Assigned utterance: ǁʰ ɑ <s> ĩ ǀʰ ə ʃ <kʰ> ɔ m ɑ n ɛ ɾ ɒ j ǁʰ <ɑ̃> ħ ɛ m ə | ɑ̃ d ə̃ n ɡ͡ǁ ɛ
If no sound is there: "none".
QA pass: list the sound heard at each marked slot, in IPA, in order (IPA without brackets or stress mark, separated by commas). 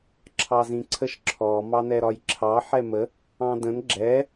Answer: z, ǁʰ, ɑ